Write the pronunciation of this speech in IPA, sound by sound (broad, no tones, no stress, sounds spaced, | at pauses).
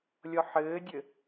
lʲ ɔ ħ ɘː dʲ ɘ